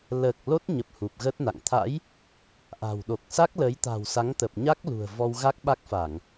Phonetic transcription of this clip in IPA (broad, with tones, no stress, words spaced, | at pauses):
ləː˨˩k̚ lo˦˥t̚ɲə˨˩p̚ hu˨˩p̚ɣə˦˥t̚na̰˧˨ŋ t̪ʰa̰˧˥j | ʔa̤˨˩wɗo˨˩k̚ sa˦˥k̚lə˨˦jt̪a̤˨˩w sa˨˦ŋt̪ə˨˩p̚ɲa˦˥k̚ lṳ˨˩ə̯vɔ˧wɣa˦˥k̚ɓa˦˥k̚ fa˧˩˨ŋ